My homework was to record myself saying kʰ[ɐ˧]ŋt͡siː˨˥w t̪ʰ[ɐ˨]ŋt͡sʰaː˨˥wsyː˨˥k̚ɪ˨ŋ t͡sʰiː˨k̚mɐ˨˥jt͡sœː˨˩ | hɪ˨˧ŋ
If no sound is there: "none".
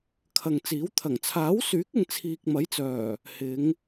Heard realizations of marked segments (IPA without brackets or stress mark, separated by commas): ɐ˨, ɐ˨˩